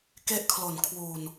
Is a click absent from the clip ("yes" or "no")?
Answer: yes